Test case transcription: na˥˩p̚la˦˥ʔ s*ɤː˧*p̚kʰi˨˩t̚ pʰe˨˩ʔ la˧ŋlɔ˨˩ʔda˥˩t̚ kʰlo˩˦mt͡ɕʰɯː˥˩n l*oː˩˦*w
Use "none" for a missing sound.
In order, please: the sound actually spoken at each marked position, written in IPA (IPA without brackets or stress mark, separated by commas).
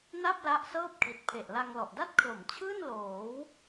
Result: ɤː˥˩, oː˩˦